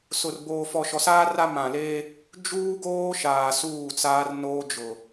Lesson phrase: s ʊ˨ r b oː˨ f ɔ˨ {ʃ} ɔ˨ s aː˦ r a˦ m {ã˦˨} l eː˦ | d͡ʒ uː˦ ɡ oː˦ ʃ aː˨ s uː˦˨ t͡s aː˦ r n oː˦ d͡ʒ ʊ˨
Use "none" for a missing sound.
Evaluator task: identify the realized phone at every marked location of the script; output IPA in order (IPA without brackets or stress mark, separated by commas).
ʃ, ã˨